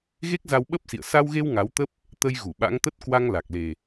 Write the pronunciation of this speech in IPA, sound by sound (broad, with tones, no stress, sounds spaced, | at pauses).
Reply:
ɣ e˦˥ k̚ z a˧ w ɓ ə˦˥ p̚ s ḭ˧˨ ə̯ s a˧ w ɣ e˧ w ŋ a˨˦ w t̪ ə˦˥ p̚ | t̪ ə˧ j ɣ u˧˩ ɓ a̰˧˥ ŋ t̪ ə˦˥ t̚ k w a˧ ŋ l a˨˩ k̚ l e˨˩